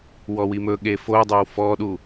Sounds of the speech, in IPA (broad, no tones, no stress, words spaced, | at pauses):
wɔwimɵɠe fodˤœw fɔɗu